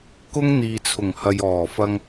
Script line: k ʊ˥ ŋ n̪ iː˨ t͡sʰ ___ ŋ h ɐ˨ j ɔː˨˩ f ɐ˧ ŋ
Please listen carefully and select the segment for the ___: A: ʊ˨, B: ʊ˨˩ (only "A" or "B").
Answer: B